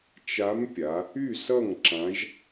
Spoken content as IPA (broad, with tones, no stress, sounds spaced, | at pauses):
t͡ʃ a˧˥ m pʲ a˩˧ | y˥˨ s ʌ˥˨ ŋ ǁ ã˧˥ ʒ